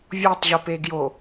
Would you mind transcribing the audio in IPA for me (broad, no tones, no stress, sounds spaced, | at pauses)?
vʲ o tˤ ʑ o p e ɡ j o